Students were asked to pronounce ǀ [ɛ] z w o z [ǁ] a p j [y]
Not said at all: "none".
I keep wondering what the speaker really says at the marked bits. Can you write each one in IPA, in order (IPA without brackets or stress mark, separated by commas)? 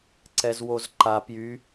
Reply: ɛ, ǃ, y